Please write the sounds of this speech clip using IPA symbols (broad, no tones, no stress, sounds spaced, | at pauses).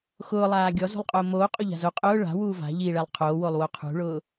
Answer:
x ʊː lˠ aː ɡʲ ɔ z ṳ lˠ qʼ ʊː m oː qʼ o ʎ a̤ z o qʼ ʊː ɭ a̤ w uː v a̤ ʎ i ɭ ɛ lˠ qʰ oː w o lˠ w o qʰ ṳ ɭ ʊː